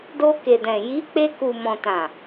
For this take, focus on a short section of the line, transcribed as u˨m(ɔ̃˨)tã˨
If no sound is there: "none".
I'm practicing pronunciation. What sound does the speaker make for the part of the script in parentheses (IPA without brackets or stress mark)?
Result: ɔ̃˨